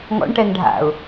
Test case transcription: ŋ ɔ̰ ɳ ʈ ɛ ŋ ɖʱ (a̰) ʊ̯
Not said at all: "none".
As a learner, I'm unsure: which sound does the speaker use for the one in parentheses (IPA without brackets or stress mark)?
a̰